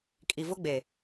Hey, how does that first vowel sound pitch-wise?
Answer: low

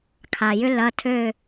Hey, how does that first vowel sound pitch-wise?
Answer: low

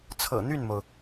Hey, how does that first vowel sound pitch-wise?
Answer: low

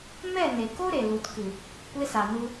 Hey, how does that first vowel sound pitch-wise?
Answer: falling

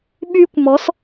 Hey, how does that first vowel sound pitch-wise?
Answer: high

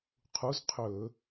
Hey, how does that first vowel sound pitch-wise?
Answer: rising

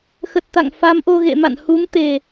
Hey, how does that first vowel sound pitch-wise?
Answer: low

